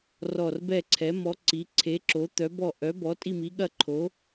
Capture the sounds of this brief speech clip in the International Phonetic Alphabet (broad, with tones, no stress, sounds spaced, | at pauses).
r ɔ˦˨ r b ɛ˦˨ ǀʰ ɛ˨˥ m ɔ˨˥ ǀ i˨˥ ǀʰ e˨˥ ǁ o˨˥ t̪ œ˨˥ b ɔ˦˨ ʔ œ˨˥ b ɔ˨˥ tʼ i˦˨ m i˨˥ ɠ ɐ˦˨ ǃʰ o˨˥